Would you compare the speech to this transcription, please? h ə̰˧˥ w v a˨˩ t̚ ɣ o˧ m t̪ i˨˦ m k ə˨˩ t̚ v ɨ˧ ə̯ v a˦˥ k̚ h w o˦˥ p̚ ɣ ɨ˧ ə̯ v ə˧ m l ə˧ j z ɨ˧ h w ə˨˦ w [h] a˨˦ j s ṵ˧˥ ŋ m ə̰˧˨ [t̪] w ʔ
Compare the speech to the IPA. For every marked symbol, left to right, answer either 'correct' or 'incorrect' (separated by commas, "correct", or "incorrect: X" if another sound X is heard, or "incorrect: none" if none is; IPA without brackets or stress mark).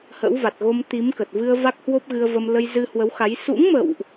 incorrect: x, incorrect: none